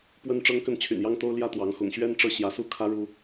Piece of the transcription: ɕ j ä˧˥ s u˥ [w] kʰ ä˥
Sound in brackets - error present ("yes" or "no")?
yes